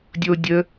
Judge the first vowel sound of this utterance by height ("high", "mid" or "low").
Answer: mid